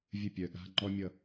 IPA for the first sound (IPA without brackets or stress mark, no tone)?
vʲ